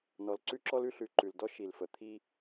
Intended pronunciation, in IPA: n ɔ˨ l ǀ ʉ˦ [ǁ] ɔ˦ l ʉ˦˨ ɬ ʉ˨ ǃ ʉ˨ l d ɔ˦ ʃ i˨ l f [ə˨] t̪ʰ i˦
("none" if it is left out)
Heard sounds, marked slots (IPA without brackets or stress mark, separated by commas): ǁ, ə˨